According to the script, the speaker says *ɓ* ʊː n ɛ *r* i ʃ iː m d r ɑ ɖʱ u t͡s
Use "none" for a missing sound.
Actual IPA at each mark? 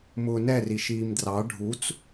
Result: m, r

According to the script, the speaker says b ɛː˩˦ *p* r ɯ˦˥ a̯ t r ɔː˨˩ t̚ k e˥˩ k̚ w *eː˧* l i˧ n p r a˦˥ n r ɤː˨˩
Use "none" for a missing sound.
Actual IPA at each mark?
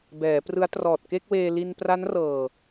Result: p, eː˧

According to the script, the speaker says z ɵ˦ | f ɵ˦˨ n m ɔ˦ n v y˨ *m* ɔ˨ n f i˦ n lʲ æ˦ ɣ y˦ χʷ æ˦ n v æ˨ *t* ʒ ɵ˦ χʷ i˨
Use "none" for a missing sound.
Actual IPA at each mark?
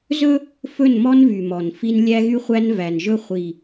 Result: m, n

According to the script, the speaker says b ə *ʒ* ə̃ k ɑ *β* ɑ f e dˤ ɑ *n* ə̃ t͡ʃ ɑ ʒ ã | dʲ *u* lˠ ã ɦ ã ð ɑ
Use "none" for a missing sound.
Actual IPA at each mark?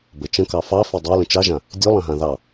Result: t͡ʃ, f, l, ʉ

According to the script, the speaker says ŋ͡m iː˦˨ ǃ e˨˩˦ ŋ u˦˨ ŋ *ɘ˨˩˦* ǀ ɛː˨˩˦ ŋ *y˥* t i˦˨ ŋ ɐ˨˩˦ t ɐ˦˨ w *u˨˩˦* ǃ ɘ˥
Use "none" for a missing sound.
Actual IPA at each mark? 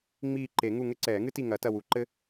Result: ɘ˥, ɨ˥, u˨˩˦

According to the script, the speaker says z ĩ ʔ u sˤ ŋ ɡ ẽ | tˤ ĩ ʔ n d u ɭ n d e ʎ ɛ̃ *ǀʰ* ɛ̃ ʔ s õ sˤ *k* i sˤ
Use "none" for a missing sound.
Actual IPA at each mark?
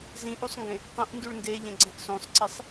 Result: ɡ͡ǀ, ǀ

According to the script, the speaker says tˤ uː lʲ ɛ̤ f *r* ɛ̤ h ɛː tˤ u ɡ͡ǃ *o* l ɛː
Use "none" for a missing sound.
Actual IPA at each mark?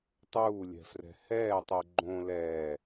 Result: r, õ

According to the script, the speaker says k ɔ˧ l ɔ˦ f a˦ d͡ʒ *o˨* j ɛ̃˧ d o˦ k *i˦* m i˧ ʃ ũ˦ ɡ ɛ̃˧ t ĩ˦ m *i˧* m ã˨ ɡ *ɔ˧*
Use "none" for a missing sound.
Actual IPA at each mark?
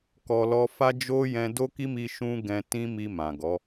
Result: o˦, i˦, i˧, ɔ˨˦

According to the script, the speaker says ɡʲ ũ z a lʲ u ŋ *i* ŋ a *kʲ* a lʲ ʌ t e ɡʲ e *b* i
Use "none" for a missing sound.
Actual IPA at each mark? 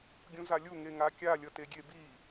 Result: e, kʲ, b

